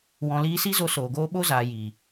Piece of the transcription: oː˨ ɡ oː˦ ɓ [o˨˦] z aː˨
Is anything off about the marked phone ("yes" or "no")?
yes